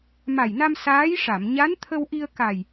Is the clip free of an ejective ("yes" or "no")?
yes